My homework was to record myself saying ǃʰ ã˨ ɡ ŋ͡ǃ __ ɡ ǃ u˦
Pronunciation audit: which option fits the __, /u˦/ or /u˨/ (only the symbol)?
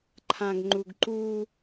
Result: u˨